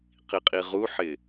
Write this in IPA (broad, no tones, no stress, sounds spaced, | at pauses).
q i qʼ i ʁ u ħ ɪ